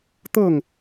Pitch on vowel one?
falling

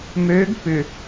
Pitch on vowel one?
rising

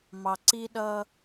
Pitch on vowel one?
low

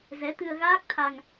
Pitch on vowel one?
rising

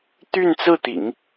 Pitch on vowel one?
falling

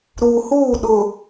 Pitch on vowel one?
low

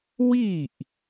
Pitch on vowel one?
falling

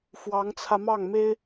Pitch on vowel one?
rising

